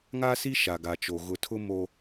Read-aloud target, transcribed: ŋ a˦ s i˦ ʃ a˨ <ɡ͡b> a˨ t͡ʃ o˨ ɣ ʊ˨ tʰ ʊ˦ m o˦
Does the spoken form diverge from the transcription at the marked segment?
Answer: yes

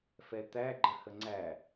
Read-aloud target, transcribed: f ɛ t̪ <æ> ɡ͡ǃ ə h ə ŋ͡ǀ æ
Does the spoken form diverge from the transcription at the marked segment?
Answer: no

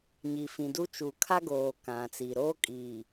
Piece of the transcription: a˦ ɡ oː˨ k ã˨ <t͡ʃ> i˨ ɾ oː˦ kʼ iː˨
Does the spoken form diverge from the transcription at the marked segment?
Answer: yes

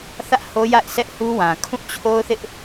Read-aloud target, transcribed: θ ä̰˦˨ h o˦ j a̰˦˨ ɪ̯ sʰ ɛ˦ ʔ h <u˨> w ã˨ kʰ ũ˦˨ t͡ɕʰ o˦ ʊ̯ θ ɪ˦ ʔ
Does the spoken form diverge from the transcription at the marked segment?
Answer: yes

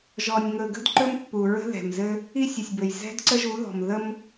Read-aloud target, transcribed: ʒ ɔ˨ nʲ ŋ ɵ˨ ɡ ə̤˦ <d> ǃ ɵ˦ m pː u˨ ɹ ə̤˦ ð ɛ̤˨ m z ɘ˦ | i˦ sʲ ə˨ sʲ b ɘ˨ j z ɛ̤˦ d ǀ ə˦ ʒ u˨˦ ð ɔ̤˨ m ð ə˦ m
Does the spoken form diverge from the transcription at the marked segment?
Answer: no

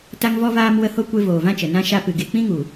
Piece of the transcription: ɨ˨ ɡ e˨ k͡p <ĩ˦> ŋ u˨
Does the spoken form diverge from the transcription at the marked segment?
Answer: no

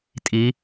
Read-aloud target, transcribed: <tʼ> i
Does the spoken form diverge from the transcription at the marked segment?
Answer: no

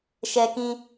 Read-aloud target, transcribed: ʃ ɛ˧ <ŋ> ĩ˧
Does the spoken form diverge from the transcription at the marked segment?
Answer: yes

